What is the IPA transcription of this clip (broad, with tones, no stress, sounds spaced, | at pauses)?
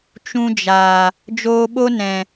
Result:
t͡ʃ ũ˧ d͡ʒ aː˨ | d͡ʒ oː˧ ɓ o˦ n ɛ̃˨